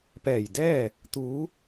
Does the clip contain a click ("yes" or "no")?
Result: no